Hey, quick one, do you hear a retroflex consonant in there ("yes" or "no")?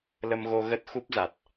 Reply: no